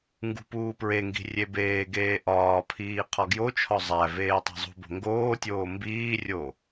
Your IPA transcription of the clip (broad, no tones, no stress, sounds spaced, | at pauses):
ŋ ɡ ṳ p uː p ɹ e ŋ ɡ i̤ rʲ e b eː ɡ eː ʔ ɒː pʰ iː qʰ ɒ ɡ j o t͡ʃʰ ɒ zˤ æ v eː tˤ æ̤ zˤ ṳ b o̤ ŋ ɡ oː tʲ oː m b iː rʲ o